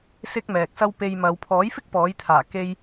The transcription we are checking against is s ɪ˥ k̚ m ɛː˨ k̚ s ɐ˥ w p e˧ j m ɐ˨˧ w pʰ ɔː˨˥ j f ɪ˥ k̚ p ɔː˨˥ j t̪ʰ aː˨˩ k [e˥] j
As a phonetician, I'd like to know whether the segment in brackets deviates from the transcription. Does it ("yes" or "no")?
no